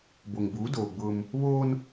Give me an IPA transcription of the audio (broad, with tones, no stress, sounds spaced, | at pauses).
b o˨ ŋ b uː˨˦ d oː˨ ɡ͡b ʊ˦ m | β oː˦ n